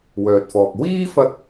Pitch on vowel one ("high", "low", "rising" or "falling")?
low